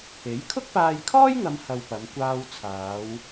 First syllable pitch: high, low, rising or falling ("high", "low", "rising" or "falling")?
rising